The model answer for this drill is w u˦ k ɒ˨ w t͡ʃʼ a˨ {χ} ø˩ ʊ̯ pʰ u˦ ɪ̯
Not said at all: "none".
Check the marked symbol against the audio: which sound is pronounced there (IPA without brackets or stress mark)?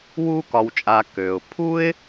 k